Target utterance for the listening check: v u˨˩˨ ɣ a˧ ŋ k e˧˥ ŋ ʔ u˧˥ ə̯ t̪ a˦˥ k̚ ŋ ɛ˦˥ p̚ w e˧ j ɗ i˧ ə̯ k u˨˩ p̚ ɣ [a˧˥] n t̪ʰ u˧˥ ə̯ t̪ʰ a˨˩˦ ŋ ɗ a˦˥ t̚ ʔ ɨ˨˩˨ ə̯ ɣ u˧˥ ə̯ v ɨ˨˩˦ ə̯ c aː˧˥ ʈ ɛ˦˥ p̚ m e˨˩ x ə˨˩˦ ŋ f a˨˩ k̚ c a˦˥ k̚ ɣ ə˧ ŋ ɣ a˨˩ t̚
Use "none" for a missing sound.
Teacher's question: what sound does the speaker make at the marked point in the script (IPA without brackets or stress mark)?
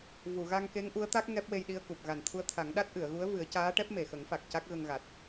a˨˩